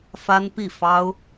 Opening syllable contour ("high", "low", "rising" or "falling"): high